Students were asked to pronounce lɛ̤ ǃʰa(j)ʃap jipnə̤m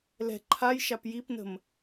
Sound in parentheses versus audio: correct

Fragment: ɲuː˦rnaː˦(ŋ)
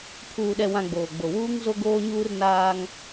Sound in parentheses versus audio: correct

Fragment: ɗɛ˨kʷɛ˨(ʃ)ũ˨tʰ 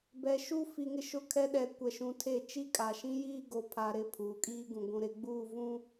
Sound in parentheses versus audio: correct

